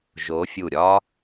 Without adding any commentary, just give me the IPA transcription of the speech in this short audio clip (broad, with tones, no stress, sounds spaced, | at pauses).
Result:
ʒ o˨˦ fʲ u˧˩ ɾʲ ɒ˦˥